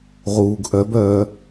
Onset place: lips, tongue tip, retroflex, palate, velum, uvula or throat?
uvula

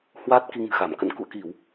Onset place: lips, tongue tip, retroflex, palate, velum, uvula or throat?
throat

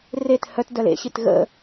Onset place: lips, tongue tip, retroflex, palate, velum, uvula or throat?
tongue tip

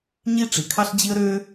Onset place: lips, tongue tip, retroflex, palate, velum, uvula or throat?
palate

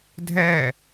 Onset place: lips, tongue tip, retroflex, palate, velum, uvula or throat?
tongue tip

